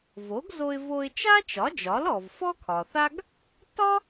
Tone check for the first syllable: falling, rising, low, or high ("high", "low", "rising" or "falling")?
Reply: rising